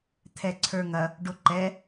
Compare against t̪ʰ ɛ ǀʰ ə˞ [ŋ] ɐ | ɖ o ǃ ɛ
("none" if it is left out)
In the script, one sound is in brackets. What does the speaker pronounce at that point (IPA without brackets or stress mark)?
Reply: ŋ